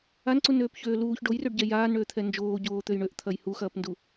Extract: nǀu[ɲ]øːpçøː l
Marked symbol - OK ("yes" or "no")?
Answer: no